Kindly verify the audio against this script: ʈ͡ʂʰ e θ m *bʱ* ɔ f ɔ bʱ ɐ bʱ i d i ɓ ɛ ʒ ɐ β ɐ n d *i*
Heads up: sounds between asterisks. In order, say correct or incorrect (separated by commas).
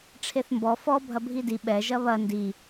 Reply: incorrect, correct